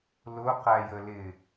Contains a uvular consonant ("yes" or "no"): yes